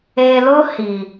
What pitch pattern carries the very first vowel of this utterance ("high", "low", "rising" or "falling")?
low